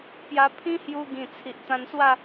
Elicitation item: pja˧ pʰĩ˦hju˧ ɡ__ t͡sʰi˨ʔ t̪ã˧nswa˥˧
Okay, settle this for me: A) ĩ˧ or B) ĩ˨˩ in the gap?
B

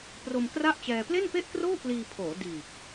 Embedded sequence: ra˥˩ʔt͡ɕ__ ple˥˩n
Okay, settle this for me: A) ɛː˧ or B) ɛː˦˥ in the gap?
A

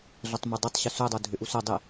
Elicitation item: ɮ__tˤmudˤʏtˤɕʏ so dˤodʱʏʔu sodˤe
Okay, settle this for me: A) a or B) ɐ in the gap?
B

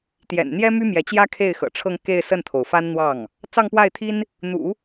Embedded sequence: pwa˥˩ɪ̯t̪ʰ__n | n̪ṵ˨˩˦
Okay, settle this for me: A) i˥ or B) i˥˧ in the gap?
A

